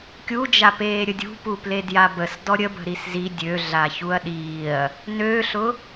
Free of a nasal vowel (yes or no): yes